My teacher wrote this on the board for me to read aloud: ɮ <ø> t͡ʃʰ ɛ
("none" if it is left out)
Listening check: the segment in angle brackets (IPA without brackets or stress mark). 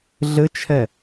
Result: ɘ